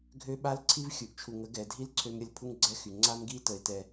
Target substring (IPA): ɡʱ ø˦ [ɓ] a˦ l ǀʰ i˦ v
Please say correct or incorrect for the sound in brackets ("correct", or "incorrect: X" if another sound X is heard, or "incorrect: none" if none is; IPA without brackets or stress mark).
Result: correct